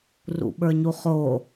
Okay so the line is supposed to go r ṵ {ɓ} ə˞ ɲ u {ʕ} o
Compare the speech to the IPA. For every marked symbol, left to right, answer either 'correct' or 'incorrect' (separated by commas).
correct, incorrect